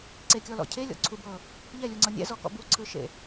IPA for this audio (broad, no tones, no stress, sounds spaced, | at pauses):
ǀ e kʲ ɔ l ɔ̰ cʰ e lʲ ɔ̰ ǀʰ u b ɤ | ʎ ɛ lʲ u ŋ͡ǀ ɤ nʲ ɛ̰ z ɔ k ɔ̰ b u ǀʰ ɯ ʃ ḛ